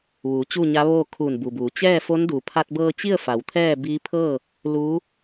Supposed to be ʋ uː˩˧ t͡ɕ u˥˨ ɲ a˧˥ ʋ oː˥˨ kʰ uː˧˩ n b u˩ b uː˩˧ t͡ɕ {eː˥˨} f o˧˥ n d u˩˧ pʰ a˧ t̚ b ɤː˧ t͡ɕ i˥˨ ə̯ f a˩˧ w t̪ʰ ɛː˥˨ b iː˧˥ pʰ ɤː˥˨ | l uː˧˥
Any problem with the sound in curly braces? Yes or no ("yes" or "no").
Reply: yes